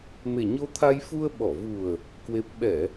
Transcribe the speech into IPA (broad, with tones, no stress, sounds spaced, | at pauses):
m e˨˩ ɲ o˧ t̪ʰ a˧ j f u˧ ə̯ ɓ ɔ˧˩ v u˨˩ ə̯ | k w e˦˥ p̚ ɓ ɛ˧˩˨